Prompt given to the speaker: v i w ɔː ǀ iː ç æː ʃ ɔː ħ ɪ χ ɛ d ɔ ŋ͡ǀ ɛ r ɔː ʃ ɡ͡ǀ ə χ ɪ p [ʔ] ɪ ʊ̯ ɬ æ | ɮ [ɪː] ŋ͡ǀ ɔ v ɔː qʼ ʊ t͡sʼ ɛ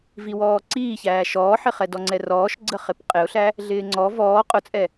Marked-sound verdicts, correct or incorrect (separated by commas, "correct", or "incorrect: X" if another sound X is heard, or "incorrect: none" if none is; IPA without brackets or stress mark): incorrect: qʼ, correct